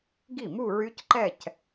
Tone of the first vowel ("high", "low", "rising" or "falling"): falling